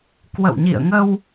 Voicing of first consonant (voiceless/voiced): voiceless